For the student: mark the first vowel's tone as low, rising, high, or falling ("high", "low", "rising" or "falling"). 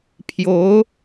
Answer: rising